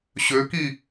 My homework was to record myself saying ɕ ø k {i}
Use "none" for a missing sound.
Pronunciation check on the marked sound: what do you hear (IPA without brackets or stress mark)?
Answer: i